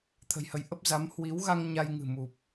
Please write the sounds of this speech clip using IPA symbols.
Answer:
t̪ʰə̤˨˩jhə˨˦jʔə˦˥p̚ za˨˦m hwi˨˦w ɣa˧ŋ ɲa˧jŋɨ̤˨˩ mu˨˩p̚

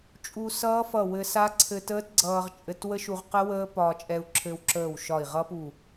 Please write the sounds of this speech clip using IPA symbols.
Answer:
t͡ʃʼu˧sʌː˦˥fʌ˧˩wɘ˧ sa˦˥ǀʰɘ˧təː˦˥t ɡ͡ǀʌː˧ʁt͡ʃʼɘ˧t wə˦˥ʃu˧ʁqə˦˥ wəː˦˥pɒː˧t͡ʃʼɛ˧u̯ ǁʰɘ˧wǁəː˧˩w ʃɒ˧˩i̯ʁʌ˦˥pu˧˩

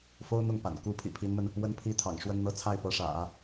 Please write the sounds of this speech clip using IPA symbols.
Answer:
fo˥ʊ̯n̪ʊ˥˩ŋpa̰˨˩n ku˧˥ pʰḭ˨˩pʰi˧˥nmə˧n | wə˥˩n pʰi˥t̪ʰɑ̰˨˩ŋʂwə˥nn̪ɤ˥˧ t͡sʰa˥˩ɪ̯pɤ˧˥ʂä̰˨˩˦

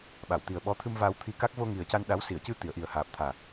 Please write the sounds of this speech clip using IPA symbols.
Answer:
ɓa˨˩˨wt̪i˨˩ə̯ɓɔ˧˥ t̪ʰɨ˧mvaː˧wt̪ʰi˧ka˦˥k̚ vo˧ ŋi˨˩ə̯ca˧n ɗa˧˥wsi˨˩˨ə̯ cɨ˧t̪i˨˩˨ə̯ʔi˨˩ə̯ haː˨˩p̚t̪ʰaː˨˩

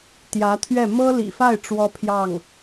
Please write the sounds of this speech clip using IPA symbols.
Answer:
t̪jä˧˥t̪ʰɥɛ˥˩ mɤ˥lḭ˨˩fa˥˩ɪ̯ ʈ͡ʂwɔ˥pʰjɑ˥˩ŋ

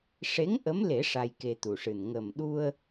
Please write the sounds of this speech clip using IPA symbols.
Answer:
ʂe˧˥ŋ ʔə˧˥mle˨˩˦ ʂa˧jke˧t̪u˨˩ʂɨ˨˩n ŋə˨˩mɗu˧ə̯

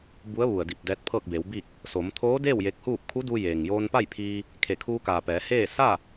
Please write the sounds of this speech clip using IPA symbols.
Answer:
bu˧˥ə̯ ʋu˩ə̯di˧˩p̚ dɛː˧˥t̚ pʰɤː˥˨k̚beː˩˧wbi˥˨k̚ | so˩˧mt̪ʰoː˧˥deː˥˨w je˧k̚huː˥˨p̚ kʰu˧˥duː˧ jeː˩ŋ joː˧npa˥˨jpʰiː˧ | kʰe˧˩kʰuː˧kaː˩ pɛː˩˧heː˥˨ sa˥˨

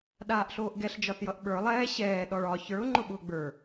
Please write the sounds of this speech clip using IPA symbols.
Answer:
ɗaːʔɬoːʔɡɛɬ d͡ʒɒθjʌʔɓə˞ lˠɛː ɕɛː ɗɔɭɒ çə˞ʊ̯ ŋ͡ǃʊɓʊːɡ͡bə˞

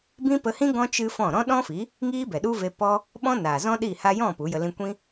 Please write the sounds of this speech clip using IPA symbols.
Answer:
bĩ˦pə˧hĩ˦ ɡɔ̃˦ t͡ʃɨ˦fɔ̃˦˨ ɾɔ̃˦ɗɔ̃˦fi˨˦ | ŋiː˦bɛ˨ɗu˦ve˧ pɔ˦ | ɓɔ̃˦ naː˨zɔ̃˦ɗi˦˨ ha˧jɔ̃˦˨ pu˨˦jə˧ lĩ˧kʷĩ˦

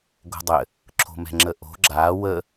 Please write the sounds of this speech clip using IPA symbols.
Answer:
ɡo̤dˤɘ | ǁʰo̤mɛ̤ŋ͡ǁəʔo̤ ɡ͡ǁa wə

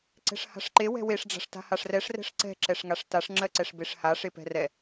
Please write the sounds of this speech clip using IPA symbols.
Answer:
ǀɛ̤ʂha̤ʂǃe wɛ̤weʂ ɖ͡ʐa̤ʂta̤haʂrɛʂ rɛ̤ʂǀɛ̤ ǁɛʂŋaʂtaʂ ŋ͡ǁɜǀɛʂbeʂha ʂepɛ̤rɛ

